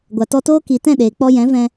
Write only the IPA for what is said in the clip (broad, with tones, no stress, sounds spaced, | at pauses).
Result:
ɡʷ a˨ t ɔ˧ t oː˦ k i˨ t ɛ̃˦˨ ɗ eː˨ k͡p ɔ˧ j ɛ̃˨˦ v ɛ̃˧